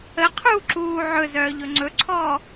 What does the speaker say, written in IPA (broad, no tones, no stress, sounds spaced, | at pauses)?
ə qʰ uː ǁ uː ʕ ɵ z œː ʎ ɵ ŋ͡ǀ ɵ ǀʰ ɔː